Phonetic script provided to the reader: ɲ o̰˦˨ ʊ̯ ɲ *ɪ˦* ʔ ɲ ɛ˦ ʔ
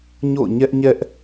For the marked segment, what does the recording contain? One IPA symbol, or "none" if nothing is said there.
ɛ˦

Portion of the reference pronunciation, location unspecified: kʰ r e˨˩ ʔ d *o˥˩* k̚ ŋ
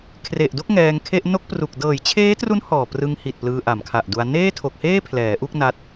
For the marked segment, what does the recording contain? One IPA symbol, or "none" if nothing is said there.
o˥˩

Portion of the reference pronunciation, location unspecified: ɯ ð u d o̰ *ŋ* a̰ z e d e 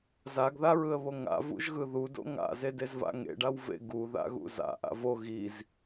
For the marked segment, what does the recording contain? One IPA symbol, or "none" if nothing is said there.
ŋ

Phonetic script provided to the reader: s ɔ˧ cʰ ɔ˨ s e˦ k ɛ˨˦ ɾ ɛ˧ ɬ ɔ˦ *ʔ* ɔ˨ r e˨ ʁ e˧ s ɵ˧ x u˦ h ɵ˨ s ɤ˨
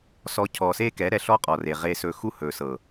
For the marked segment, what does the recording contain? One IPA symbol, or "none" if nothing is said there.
qʼ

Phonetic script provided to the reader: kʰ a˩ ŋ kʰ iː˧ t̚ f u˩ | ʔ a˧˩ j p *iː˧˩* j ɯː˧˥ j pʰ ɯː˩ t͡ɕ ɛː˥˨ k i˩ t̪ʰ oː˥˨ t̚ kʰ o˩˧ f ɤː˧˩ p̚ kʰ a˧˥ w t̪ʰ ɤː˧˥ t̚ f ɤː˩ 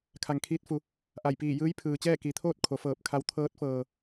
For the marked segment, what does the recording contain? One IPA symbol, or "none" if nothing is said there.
iː˧˩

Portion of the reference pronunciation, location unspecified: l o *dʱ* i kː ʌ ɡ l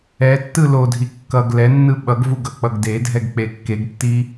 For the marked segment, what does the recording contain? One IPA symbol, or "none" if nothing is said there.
dʱ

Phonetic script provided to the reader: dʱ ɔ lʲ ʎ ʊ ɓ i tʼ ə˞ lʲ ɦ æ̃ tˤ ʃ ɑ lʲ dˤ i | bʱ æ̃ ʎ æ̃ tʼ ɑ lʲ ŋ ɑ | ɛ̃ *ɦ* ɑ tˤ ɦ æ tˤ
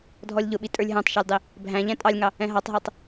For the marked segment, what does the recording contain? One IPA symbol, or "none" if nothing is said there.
ɦ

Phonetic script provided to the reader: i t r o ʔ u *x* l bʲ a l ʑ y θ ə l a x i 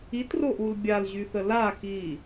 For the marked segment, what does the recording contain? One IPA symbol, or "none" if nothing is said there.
none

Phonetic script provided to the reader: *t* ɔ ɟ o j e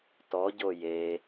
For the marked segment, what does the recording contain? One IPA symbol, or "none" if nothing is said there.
t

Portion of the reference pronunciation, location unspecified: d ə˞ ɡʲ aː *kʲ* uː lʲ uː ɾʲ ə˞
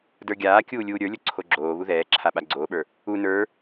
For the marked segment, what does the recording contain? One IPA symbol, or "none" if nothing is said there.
kʲ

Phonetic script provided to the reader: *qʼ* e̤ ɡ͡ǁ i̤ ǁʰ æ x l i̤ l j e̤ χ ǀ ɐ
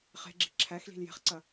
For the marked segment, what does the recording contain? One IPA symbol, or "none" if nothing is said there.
χ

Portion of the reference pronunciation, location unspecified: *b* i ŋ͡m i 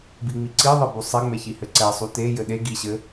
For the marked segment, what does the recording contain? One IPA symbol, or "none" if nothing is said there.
b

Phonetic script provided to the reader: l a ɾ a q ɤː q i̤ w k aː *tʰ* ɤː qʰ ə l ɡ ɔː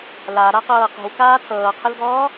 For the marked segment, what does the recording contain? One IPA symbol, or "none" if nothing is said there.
tʰ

